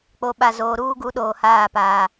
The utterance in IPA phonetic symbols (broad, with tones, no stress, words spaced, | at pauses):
k͡po˨ɓa˨zoː˨ ɾuː˦ɡu˨˦ɗoː˨haː˦˨ paː˦